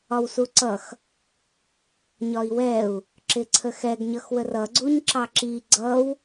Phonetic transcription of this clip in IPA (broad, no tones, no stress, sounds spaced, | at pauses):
ɒ w s u ǀ ʌ x | ɲ ɒ i̯ w ɛ u̯ | ǁ ɪ ǀʰ ə x ɛ ɡ ɲ ʌ x w ə r ʌ ɡ͡ǀ u ɲ ǁ ɑ ǁ i ɡ͡ǀ ʌ w